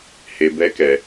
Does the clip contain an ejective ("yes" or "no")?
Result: no